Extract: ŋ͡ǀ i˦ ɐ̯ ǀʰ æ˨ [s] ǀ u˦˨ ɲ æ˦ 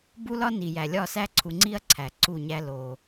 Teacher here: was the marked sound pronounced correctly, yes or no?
no